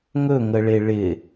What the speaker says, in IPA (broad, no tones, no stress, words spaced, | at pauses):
ŋɵŋəɭe ɭɪ